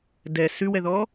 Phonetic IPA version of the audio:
dɛ sʉwɛðɔ

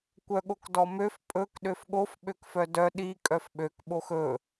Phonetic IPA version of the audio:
kʷœɠokdɔmøf pʼɵk ɗøfɠof ɓøkfœdœ ɗi kʼœfɓøk ɓoxɵ

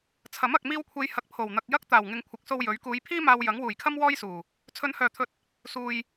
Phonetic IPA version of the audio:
t͡sʰɐ˨˥m ɐ˨k̚miː˧wkʷʰe˨˧j hɐ˨k̚pʰo˨˩wn̪ɐ˨k̚ jɐ˥k̚ t̪aː˨˩wŋɪ˨ŋkʷʰɪ˨˥k̚so˧w jɵ˨˥ɥ kuː˨˧jpʰiː˥ maː˧w jɐ˨˥ŋwuː˨˩jkʰɐ˥m wɔː˥jsuː˨˩ | t͡sʰɵ˨˧nhœː˨˩t̪ʰɵ˨t̚ | suː˨j

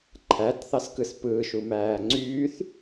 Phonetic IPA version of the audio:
ǃʰæt θɑskɯspɯːʃu mæːŋ͡ǀyːθ

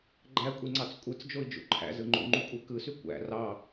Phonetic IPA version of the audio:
ɡ͡ǃækʷʼiŋ͡ǀɑt͡s kʷʼɯt͡sd͡ʒoi̯d͡ʒṵ ǃʰæ̰zɯ ŋ͡ǃṵŋ͡ǃukʷʼe kɯsy kʷæ̰ rɑ

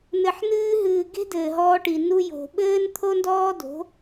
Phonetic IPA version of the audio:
nɘ˨ħnɨː˧ɦɨː˨ ɡe̤˦dɘː˨ɦɔː˧ʈi˨ nu˧jo̤˨ ɓɘː˦nt̪ʰo˦ndɔː˦do̤˨˦

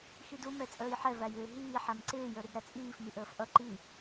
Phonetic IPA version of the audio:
xidu mɛt͡sʼəːjħɛ væjɪːɦiː ħæmǀɪː jə˞ɾidɾæt͡sʼiːf miʔəːfʔʌ ǃi

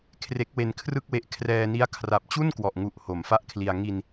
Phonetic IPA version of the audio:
kʰre˦˥k̚we˧nkʰrɯ˥˩k̚we˦˥ʔ kʰrɛː˧ni˦˥a̯ kʰra˨˩p̚t͡ɕu˥˩n kwɔ˨˩ʔŋu˨˩ʔ ho˩˦mfa˥˩ʔkʰli˧a̯ ŋi˧n

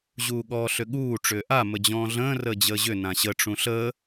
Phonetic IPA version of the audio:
ʑuːɠɔːɬʏɠuː ʈ͡ʂʏːʔa məd͡ʑɔ̃ːɮə̃ː rəːd͡ʑəːʑʏ nãɕə ʈ͡ʂũɬəː

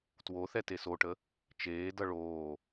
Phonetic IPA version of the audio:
twoθɛ tesoʈə | t͡ʃeːdʌ ɭoː

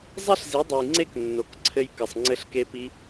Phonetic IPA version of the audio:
zˤɛ˦ɬzi˨˦dˤɨ˨j ŋ͡ǀe˦knːo˨k ǀʰɘ˧j kɘ˨sˤŋ͡ǀɘ˧ɬke˧pi˧

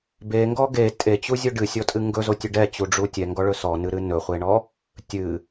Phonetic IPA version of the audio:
beŋɡɔ ɡe tʼet͡ɕuzʲo ɖɨsʲɔtʼɨ ŋɡɵzotʲɵ ɖɛt͡ɕuɖ͡ʐu tʲɛŋɡɔɭɵ sɔnɨɾɨ nɵχʷeɳɔ | tʲɨ

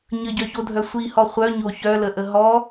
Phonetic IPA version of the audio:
ɲəɟœçodʱœ sʷihɔ χʷœɲo çœləʔə ɦɔ

